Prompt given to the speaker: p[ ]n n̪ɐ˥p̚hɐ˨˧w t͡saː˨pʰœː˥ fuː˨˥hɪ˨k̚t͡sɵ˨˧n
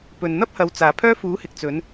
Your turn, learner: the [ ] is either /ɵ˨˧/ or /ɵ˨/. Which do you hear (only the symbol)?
ɵ˨